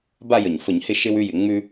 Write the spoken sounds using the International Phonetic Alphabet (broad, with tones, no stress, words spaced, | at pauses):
ba˦˨jə˩ɲfə˧˩˧ɲhɪ˦˨ ʃɪ˦w ʉ˦jɪ˧˩˧ŋ͡mʉ˦